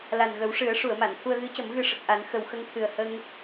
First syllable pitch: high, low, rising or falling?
low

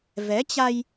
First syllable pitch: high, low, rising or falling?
rising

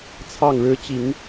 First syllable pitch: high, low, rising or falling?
falling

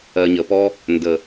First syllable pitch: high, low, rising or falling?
low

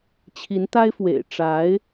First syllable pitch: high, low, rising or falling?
rising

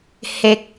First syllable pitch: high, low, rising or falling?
low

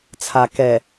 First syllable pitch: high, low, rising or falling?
low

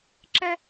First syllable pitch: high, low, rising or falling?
high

